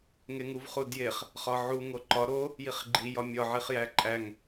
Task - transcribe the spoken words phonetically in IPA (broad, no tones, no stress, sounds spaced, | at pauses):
ŋ e ŋ u v χ u d j e χ | χ ɒ ʕ u ŋ o ǃ ɒ ɾ o | j i χ ɡ͡ǃ i j ɒ mʲ ɒ ʕ i χ j æ ǃʼ æ ŋ